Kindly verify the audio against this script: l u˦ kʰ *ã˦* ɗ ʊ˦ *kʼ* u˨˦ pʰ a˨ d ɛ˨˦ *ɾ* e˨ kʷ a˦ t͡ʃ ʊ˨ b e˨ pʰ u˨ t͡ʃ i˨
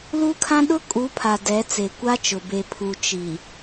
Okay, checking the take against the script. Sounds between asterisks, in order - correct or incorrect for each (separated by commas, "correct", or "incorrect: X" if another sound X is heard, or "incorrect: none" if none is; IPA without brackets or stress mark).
correct, correct, incorrect: t͡s